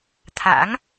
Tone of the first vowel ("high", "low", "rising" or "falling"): rising